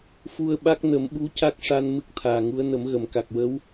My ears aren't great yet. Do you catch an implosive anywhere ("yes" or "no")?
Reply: yes